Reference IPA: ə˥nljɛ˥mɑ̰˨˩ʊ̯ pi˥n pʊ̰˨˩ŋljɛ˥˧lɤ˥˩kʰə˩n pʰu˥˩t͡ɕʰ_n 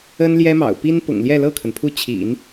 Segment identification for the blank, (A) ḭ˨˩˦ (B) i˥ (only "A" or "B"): A